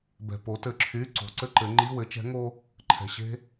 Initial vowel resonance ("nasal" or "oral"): oral